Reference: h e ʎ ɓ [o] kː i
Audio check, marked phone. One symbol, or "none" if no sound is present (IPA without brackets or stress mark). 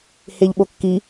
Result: o